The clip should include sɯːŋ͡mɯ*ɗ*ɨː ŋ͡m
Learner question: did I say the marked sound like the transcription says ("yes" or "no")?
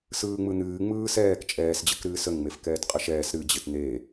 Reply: no